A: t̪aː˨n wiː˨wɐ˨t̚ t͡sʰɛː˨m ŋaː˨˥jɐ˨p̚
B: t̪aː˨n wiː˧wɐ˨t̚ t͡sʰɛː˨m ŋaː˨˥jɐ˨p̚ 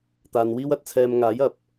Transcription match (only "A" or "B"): B